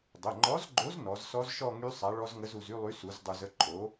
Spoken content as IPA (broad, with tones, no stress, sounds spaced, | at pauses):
dˤ ə˩˧˩ ŋ͡ǃ ɔ˨˥ z ɡ͡ǃ o˨˥ z n ɔ˨˥ z s ɔ˦˥ z ʃ ɔ˥˧ ŋ y˦˥ sˤ a˨˥ ɭ ɔ˦˥ z ŋ ə˦˥ z u˧ z y˥˧ lˠ y˨˥ s u˨˥ z dˤ u˧ z ə˥˧ ǃʼ o˨˥